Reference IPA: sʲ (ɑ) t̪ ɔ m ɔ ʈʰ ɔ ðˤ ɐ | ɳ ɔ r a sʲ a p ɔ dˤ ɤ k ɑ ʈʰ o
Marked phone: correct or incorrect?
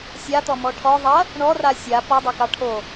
incorrect: a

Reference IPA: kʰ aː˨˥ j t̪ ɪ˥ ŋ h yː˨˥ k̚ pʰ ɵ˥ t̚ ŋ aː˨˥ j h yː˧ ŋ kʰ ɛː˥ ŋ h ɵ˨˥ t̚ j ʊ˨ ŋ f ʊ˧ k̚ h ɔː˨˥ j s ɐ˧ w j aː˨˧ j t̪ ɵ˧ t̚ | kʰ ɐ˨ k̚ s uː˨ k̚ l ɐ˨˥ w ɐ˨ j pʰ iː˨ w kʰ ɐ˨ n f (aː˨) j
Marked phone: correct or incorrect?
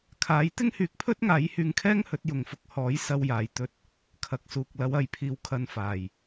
incorrect: aː˨˩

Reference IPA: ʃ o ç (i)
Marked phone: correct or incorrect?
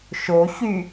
incorrect: y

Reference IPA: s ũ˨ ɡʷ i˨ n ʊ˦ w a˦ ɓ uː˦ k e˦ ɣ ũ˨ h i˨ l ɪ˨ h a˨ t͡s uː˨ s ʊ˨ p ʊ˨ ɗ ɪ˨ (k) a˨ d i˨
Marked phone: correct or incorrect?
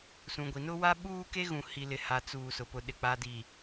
incorrect: k͡p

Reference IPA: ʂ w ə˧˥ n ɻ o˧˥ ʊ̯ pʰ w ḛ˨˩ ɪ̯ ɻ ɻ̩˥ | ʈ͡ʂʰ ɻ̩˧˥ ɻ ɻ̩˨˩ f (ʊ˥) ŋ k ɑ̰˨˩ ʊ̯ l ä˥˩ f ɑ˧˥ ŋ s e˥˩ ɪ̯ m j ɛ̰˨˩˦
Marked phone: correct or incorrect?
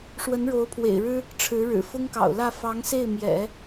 correct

